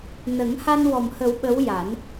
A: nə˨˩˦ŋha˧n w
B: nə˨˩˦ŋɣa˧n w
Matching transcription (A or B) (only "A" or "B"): A